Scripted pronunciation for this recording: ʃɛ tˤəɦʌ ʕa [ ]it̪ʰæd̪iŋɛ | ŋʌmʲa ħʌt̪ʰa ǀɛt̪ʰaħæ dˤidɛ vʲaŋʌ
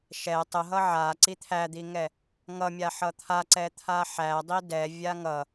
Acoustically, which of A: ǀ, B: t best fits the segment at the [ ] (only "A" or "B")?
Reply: A